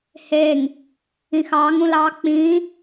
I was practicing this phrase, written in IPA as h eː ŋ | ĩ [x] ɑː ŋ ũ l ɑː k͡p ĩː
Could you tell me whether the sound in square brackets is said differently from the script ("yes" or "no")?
no